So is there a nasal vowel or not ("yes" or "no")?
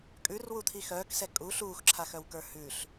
no